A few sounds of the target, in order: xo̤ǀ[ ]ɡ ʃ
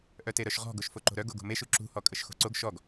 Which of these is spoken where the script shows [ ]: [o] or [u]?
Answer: o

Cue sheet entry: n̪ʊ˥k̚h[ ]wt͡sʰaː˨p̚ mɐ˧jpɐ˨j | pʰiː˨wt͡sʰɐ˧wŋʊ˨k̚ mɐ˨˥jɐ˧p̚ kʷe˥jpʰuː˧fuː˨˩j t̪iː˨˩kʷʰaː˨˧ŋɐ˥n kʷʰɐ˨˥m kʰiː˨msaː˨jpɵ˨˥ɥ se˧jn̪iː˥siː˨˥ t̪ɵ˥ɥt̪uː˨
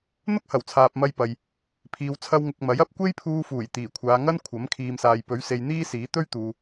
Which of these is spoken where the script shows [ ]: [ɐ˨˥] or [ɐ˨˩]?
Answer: ɐ˨˩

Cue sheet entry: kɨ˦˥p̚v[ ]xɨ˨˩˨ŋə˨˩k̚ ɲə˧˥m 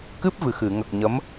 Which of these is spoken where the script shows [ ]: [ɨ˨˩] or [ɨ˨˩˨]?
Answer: ɨ˨˩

